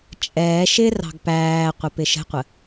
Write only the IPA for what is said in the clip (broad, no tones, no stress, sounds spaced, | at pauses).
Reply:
t͡ʃʼ ɛː ʃ ɪ r ɑ̤ ɡ p æː qʷ ɪ p ɪ ʃ ə̤ qʷ ə